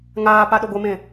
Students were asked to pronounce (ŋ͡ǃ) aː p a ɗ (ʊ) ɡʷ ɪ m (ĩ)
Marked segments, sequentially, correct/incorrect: incorrect, correct, incorrect

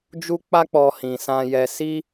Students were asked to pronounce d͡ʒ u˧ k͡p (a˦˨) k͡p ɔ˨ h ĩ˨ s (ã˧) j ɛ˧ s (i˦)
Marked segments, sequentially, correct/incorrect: incorrect, correct, correct

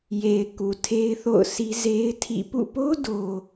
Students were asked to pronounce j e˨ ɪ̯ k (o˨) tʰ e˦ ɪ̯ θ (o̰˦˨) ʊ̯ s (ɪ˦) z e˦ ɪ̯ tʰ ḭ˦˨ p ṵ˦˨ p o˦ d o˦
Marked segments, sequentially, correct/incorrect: incorrect, correct, incorrect

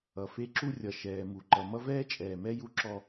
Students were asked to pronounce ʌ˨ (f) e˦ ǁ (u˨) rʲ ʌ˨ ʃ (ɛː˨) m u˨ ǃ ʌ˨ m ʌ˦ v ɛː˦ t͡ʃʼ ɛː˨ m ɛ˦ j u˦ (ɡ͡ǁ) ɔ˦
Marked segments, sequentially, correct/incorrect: correct, incorrect, correct, incorrect

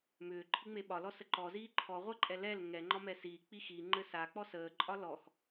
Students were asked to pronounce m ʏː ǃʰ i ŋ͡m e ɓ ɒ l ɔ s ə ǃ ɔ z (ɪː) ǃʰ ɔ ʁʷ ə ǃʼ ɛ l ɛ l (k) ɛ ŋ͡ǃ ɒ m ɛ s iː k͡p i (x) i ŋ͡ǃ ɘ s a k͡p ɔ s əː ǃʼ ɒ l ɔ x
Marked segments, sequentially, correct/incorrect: incorrect, incorrect, correct

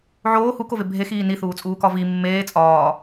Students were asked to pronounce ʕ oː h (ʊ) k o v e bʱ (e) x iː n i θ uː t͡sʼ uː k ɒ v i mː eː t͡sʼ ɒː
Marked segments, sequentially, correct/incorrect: incorrect, correct

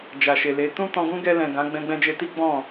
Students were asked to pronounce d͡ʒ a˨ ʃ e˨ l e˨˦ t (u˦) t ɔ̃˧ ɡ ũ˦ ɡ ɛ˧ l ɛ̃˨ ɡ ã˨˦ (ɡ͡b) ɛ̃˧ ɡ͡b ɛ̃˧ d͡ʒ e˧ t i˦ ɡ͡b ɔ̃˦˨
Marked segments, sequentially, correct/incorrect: incorrect, correct

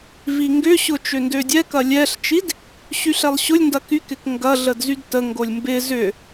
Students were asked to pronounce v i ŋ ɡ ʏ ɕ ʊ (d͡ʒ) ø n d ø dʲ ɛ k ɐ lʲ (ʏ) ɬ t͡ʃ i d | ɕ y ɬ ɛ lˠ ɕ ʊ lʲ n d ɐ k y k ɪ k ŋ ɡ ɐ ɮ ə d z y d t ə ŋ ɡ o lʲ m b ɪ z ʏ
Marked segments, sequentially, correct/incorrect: incorrect, incorrect

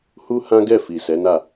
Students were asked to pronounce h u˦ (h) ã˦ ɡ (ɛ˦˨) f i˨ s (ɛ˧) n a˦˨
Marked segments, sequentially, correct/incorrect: correct, correct, incorrect

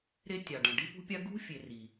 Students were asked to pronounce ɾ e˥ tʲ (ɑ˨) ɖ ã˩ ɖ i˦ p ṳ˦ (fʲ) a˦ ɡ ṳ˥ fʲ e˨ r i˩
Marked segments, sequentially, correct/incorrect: incorrect, incorrect

